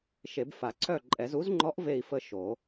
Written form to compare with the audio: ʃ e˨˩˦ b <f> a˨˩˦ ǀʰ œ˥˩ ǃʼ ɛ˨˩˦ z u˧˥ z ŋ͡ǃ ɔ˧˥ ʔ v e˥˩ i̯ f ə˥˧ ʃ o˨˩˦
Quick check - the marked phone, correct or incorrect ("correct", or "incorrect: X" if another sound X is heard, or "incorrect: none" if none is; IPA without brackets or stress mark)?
correct